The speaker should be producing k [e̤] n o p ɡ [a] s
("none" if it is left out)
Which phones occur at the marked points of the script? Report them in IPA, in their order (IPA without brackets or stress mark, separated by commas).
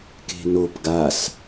e̤, a